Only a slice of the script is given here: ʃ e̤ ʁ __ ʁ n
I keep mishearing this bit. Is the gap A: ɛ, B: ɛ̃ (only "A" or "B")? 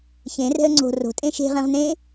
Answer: B